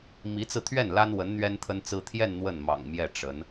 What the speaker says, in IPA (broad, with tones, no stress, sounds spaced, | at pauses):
m i˧˥ t͡s ɹ̩˧ t̪ʰ ɥ ɛ˥˩ n l a˥ n w ə˧˥ n n̪ ɥ ɛ˥ n t̪ʰ ə˥ n t͡s ɹ̩˥ t̪ʰ j ɛ˥˧ n n̪ w ə˥˩ n m ɑ̰˨˩ ŋ m j ɛ˥˩ ʈ͡ʂ ə˧˥ n